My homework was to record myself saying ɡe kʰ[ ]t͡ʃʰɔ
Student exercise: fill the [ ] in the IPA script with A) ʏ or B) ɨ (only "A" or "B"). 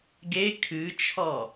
B